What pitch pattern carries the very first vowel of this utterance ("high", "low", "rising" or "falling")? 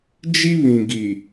high